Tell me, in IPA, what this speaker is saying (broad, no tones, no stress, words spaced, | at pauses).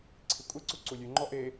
ǀʰikʷʼeǀu ǀulʲʉŋ͡ǃɔ ʔe